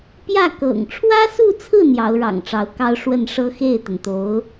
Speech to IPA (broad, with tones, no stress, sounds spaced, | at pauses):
p j ä˥˩ k ɤ̰˨˩ ŋ ʈ͡ʂʰ w ä˥ s u˥˧ t͡sʰ ɹ̩˥˩ n̪ j ɑ˧˥ ʊ̯ ɻ ɑ̰˨˩ ŋ ʈ͡ʂ ɑ˧˥ ʊ̯ k ɑ˥ ʊ̯ ʂ w ə˥˩ n ʂ ɤ˥ x e˥˩ ɪ̯ t̪ ə˩ n t̪ o˧˥ ʊ̯